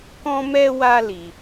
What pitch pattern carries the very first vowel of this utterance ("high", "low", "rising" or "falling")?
high